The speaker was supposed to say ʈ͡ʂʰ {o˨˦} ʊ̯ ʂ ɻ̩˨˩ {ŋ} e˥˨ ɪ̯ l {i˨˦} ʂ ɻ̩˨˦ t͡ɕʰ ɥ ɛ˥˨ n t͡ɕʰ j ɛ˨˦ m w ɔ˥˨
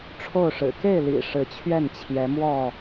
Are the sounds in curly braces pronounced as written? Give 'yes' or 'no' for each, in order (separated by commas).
no, no, no